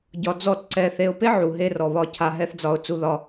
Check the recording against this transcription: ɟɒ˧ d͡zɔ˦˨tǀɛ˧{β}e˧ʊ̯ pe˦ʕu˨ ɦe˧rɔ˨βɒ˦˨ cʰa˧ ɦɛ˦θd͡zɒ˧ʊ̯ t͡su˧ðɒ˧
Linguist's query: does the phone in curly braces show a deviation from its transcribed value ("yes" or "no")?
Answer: yes